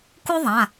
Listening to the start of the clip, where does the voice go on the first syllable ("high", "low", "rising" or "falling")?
high